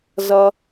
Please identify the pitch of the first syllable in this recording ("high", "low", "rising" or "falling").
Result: high